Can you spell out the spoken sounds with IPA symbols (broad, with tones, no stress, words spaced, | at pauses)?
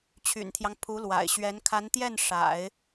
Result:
t͡ɕʰy̰˨˩nt̪ʰjɑ˦ŋ pʰu˧˥lwa̰˨˩ɪ̯ɕɥɛ˧˥n kʰa˧˥nt̪jɛ˥˩n ʂa̰˨˩˦ɪ̯